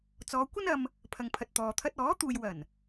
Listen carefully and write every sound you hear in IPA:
t͡sɔː˨˧kʷɐ˥nɐ˧m | pʰɐ˨ŋ pʰɐ˨t̚t̪ɔː˨ t̪ʰɐ˧t̚ ɔː˨˥t̪uː˨j wɐ˨˩n

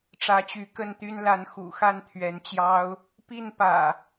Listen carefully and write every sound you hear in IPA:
ʈ͡ʂä˨˦t͡ɕy˨˦kə˥˨nt̪y˦n la˨˦nxṵ˨˩xa˥˨n t̪ʰɥɛ˨˦nt͡ɕjɑ˦ʊ̯ | pi˥˨npä̰˨˩

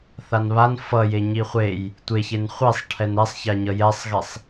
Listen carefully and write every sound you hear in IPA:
θanβan fʌje ɲiχʷej | tʷe çenχʷesˤʈʰɛn ɛsˤça ɲʌjɛsˤɣesˤ

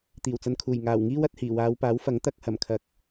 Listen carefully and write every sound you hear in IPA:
t̪iː˨˩wt͡sɐ˧nkʰuː˨˩j ŋaː˨˩wŋiː˥wɐ˧t̚hiː˨˩ waː˨˧wpaː˨˥wfɐ˨˥ŋ t̪ɐ˧k̚ hɐ˨˩mkʰɐ˨˥k̚

